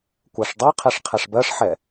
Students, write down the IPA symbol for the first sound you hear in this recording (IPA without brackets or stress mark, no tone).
kʷ